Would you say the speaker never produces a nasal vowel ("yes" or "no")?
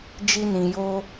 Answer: no